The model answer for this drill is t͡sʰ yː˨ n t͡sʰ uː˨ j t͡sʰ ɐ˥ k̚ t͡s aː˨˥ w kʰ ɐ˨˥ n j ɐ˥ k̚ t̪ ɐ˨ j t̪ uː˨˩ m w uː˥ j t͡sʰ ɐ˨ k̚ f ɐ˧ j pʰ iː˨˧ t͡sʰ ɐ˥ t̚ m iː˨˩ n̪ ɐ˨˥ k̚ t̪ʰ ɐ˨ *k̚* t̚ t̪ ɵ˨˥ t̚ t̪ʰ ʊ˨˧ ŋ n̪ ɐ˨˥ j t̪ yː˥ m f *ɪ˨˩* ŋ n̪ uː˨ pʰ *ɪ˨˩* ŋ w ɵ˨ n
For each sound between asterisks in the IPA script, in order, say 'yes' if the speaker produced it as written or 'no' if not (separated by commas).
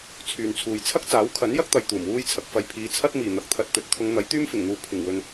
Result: no, yes, yes